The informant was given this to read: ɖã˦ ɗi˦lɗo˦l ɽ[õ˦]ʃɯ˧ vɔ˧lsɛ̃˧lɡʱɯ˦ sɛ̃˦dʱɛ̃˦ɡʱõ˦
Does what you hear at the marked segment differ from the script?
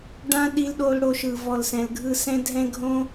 yes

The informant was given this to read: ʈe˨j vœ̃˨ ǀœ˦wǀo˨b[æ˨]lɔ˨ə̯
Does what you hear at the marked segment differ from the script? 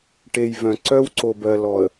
yes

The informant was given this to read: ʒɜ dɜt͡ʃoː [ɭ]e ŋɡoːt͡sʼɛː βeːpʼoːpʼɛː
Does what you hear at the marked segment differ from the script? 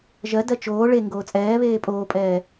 no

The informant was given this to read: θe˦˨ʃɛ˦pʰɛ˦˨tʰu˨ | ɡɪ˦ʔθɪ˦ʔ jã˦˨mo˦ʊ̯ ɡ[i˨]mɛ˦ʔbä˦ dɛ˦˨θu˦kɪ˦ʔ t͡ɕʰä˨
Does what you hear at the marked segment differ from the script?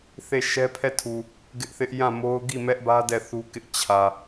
yes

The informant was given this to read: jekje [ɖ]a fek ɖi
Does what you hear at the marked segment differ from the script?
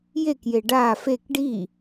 no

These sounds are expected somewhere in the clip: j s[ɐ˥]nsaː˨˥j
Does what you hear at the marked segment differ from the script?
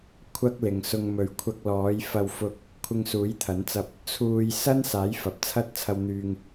no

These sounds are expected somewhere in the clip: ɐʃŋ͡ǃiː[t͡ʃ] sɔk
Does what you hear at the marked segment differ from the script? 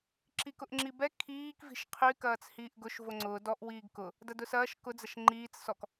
yes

